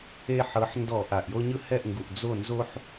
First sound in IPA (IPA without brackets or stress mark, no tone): e